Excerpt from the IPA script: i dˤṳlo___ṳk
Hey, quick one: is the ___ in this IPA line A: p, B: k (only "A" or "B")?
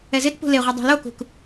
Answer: B